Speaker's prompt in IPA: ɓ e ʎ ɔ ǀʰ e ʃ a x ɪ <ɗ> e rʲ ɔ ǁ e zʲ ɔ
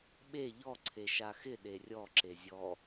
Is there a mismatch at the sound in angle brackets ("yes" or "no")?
no